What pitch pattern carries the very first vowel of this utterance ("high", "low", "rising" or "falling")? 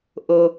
low